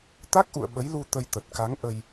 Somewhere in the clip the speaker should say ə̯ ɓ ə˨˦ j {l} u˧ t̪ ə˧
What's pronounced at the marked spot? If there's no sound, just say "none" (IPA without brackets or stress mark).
l